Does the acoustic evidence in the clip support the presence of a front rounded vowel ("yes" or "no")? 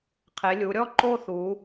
no